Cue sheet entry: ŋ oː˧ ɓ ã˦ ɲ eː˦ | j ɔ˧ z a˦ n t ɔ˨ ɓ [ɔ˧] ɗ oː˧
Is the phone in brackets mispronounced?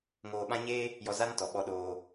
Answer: no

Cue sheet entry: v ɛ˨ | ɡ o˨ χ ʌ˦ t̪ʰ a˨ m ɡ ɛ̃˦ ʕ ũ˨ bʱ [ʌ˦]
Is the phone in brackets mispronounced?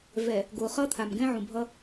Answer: no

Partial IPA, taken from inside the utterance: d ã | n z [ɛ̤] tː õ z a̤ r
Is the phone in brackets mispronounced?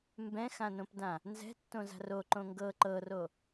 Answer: no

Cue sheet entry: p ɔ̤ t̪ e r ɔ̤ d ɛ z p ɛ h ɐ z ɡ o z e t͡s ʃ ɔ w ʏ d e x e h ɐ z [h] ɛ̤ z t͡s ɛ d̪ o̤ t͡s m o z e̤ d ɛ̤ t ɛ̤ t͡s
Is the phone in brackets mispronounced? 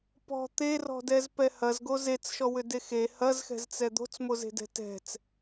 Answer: yes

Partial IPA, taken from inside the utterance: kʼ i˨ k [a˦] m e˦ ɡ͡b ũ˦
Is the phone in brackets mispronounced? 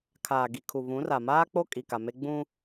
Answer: yes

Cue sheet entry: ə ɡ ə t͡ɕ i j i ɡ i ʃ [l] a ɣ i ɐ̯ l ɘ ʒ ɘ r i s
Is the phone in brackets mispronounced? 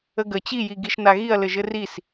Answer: yes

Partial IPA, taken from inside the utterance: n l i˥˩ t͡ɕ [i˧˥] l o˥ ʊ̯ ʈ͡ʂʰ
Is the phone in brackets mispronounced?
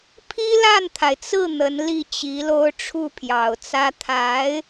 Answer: no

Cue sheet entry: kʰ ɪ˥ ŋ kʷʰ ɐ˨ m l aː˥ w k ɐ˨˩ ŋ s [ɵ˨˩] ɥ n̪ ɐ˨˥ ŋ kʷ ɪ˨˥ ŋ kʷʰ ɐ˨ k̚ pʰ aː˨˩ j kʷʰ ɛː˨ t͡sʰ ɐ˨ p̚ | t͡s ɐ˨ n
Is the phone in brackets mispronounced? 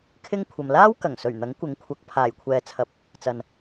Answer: no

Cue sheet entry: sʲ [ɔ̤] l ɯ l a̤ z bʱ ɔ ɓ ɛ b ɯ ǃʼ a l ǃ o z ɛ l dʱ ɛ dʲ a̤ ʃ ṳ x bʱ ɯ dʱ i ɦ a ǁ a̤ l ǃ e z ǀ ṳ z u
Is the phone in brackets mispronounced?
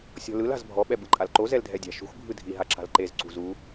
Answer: no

